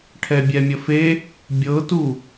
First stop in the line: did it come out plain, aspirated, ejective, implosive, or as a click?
aspirated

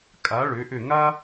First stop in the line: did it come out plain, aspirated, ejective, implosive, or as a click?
ejective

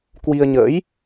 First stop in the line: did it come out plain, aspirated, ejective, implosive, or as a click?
plain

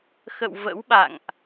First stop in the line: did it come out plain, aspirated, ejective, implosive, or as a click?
implosive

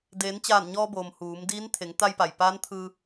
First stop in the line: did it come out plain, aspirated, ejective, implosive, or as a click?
plain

